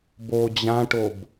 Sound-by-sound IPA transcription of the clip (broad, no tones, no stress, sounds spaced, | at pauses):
b o d͡ʑ ã ʈ o b